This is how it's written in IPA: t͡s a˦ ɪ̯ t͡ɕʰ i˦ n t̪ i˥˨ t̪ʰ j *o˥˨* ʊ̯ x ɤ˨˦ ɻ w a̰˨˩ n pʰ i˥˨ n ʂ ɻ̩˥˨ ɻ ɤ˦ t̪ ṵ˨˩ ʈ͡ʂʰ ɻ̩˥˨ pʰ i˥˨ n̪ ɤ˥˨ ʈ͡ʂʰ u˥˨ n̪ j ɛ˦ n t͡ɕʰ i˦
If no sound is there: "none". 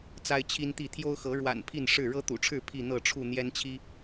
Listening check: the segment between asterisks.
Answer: o˦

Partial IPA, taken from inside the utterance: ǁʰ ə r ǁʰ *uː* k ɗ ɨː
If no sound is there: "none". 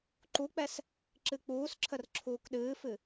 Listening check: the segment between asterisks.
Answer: uː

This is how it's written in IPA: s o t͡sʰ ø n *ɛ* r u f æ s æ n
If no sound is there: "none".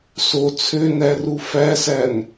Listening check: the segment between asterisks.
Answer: æ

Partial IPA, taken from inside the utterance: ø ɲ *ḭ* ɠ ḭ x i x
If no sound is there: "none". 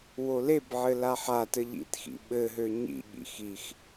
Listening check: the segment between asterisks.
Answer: ḭ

